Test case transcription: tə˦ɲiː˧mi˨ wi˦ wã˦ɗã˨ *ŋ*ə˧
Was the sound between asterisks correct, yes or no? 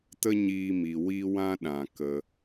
no